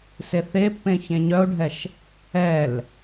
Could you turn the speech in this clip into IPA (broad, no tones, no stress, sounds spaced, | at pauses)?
s e θ e pː ẽ ç ẽ ɲ œ o̯ ɖʱ ɛ ʃ | ɛ l